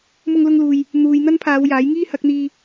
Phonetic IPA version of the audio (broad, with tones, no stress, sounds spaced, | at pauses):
m ʊ˧ ŋ l ʊ˧ ŋ l uː˨ j | n̪ uː˨ j n̪ ɐ˥ n pʰ aː˨˧ w j aː˨˥ j ŋ iː˥ h ɐ˨˥ k̚ n̪ iː˧